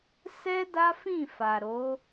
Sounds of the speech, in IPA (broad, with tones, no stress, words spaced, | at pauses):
sɛ˦da˦fĩ˦˨ fa˨ɾo˨˦